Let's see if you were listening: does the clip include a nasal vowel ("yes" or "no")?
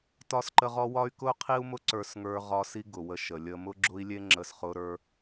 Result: no